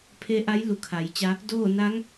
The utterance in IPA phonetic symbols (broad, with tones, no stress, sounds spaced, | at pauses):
pʰ e˧˥ ʔ a˧˥ j l u˧˩ kʰ a˩˧ j t͡ɕ a˧ | d oː˥˨ n a˧˥ ŋ